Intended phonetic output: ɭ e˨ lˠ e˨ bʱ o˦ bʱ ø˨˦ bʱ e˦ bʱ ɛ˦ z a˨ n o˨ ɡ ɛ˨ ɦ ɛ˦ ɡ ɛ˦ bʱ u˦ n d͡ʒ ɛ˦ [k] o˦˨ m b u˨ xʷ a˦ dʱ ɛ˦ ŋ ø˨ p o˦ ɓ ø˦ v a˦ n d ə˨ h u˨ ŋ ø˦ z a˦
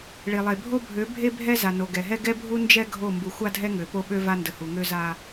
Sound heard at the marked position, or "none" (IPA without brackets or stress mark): ɡʱ